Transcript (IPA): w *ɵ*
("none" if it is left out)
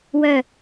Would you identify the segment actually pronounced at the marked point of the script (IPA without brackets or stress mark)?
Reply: œ